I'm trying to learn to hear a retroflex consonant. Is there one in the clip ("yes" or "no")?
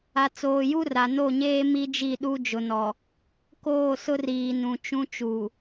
no